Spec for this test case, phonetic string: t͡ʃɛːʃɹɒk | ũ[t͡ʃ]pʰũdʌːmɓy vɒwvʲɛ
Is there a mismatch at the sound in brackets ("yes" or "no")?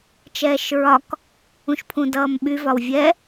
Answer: yes